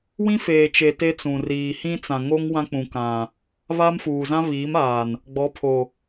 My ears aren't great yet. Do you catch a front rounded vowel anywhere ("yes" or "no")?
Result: no